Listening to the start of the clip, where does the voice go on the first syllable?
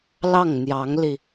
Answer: falling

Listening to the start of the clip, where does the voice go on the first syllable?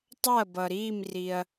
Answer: falling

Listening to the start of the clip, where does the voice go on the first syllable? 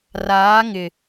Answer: rising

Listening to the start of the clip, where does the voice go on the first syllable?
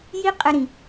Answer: high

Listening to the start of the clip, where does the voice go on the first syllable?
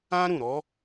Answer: high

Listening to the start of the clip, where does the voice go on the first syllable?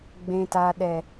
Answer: low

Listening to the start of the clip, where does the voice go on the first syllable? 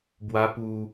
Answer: high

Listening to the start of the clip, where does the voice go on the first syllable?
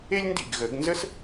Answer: high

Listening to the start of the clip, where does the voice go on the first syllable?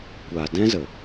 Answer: low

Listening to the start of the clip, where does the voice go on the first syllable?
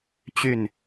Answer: falling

